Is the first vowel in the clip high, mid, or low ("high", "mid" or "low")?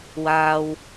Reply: low